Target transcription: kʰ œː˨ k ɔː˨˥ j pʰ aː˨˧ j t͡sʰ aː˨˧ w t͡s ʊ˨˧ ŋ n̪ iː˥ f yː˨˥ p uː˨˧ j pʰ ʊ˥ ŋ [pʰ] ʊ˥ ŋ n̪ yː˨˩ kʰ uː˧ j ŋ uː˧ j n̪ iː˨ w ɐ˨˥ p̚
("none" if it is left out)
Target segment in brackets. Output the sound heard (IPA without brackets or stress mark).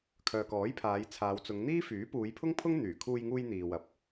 pʰ